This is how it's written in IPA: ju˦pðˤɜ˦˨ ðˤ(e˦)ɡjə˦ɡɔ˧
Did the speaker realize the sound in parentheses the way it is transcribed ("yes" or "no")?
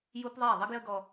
no